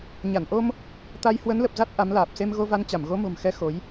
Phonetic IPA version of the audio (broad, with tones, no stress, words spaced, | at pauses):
ɲa˧˩n ʔo˧m | t̪a˧j hwə˨˦nlə˨˩p̚za˦˥t̚ ʔa˨˦mlaː˨˩p̚ se˧mɣo˧va˧nt͡ɕa˧˩m ɣo˨˦mo̤˨˩mxɛ˧ xo˨˦j